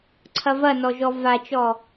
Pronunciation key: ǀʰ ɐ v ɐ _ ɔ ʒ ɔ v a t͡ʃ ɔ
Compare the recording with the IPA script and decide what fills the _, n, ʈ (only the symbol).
n